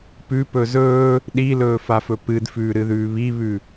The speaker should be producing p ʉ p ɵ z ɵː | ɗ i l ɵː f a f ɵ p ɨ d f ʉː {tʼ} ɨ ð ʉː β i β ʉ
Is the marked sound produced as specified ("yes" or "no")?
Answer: no